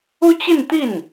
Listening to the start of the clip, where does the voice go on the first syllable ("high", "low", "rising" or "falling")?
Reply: high